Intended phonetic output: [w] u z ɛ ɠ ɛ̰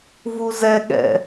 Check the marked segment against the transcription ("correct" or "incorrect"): incorrect